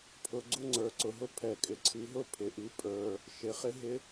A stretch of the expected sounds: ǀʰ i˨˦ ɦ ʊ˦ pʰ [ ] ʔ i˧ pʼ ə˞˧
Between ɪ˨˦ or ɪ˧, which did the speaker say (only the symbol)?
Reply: ɪ˨˦